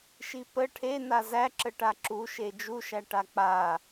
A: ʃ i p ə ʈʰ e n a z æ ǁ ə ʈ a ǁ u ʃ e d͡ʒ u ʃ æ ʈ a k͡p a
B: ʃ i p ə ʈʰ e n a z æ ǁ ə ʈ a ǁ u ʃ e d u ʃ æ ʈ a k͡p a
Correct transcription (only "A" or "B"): A